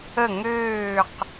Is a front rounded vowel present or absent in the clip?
present